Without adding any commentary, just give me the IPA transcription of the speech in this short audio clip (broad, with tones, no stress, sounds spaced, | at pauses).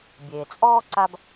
bʲ eː˩ t͡sʼ ɔː˥ ǀ a˦ b